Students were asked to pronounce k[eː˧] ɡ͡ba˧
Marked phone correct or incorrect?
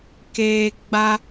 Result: correct